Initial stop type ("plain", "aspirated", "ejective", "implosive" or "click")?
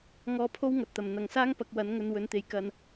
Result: aspirated